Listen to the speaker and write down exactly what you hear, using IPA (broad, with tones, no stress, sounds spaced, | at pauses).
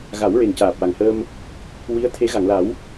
ɣ a˨˩˦ w ɹ e˨˩ n c aː˨˩ p̚ w a˨˩ ŋ h əː˧ m | w i˧˥ ə̯ t̪ʰ e˧˥ ɣ a˨˩˨ ŋ l a˨˩˦ w